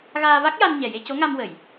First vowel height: low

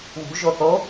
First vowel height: high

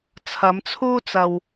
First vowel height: low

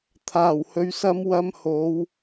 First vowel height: low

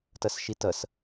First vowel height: mid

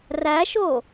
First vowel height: low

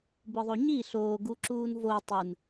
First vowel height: high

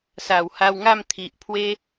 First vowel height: low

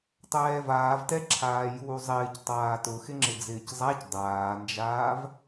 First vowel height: mid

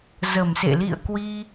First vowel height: mid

